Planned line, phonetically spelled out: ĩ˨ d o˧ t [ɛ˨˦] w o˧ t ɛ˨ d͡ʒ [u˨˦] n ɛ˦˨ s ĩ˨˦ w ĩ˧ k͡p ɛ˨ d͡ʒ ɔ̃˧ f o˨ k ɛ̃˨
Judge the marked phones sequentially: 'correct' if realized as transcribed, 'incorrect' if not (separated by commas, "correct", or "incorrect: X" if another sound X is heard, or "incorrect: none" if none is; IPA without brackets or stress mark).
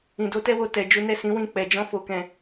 incorrect: ɛ˦, correct